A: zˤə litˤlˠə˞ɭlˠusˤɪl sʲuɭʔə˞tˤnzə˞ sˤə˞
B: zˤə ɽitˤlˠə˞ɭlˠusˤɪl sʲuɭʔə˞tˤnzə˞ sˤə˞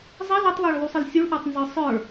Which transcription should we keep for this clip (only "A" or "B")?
A